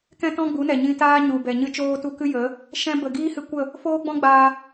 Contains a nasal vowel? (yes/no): yes